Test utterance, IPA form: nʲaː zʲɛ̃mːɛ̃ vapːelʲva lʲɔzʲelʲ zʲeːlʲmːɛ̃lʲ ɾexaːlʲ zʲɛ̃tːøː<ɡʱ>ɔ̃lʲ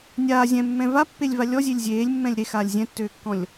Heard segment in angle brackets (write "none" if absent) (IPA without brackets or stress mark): kː